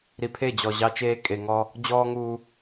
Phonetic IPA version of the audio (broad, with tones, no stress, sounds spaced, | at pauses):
ɾ i˨ pʰ e˦˨ d͡ʑ ɔ˨ ʑ ɑ˦ t͡ʃ eː˦ kʼ e˨ ŋ ɔ˦ | d͡ʑ ɔː˦ ŋ uː˦